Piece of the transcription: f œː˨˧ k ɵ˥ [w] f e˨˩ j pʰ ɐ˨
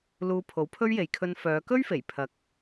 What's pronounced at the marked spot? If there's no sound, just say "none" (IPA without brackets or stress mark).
ɥ